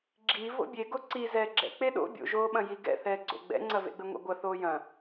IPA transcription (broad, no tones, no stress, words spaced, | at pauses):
ɡ͡ǁi vo̰bʲe ɡoǀi zɛːɡ͡ǁɛ̰ k͡peɗo̰ bʲo̰ʒoːɓɐ̃ jiɡɛ̰ θɛːɡ͡ǀo̰ ɡ͡bɛ̰ŋ͡ǀɐvḛɡ͡bɘ ŋʷɛ̰ɡʷɐ θoːjɐ̃